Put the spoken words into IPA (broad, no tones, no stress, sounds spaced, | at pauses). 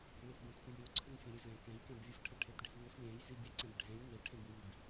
ɭ i t b ɛ̃ t k ɨ lʲ ɾʲ o ǀʰ ɘ ŋ fʲ ɛ̃ ɾʲ ɨ z ɛ̃ k ɛ̃ j k ɛ̃ b vʲ ɨ f ʈʰ ɘ ʈʰ e t ɖʱ i ŋ ɘ f lʲ ɛ̃ j z i bʲ ɛ ǀ ẽ b ɖʱ ɛ̃ lʲ ŋ e ʈʰ ẽ b w i b